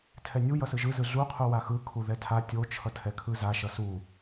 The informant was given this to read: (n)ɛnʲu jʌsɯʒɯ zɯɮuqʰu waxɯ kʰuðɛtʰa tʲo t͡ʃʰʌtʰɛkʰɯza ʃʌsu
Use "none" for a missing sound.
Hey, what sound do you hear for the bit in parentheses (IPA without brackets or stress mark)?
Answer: tʰ